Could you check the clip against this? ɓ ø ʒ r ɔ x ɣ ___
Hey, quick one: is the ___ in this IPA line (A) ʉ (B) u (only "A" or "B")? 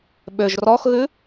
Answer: A